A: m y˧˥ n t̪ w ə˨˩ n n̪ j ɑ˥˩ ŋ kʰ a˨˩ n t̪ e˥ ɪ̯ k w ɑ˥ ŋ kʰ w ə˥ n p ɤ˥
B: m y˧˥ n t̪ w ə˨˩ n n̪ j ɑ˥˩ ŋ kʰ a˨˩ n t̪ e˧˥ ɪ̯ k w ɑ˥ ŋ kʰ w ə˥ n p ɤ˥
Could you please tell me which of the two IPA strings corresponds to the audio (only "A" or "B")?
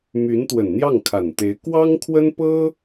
B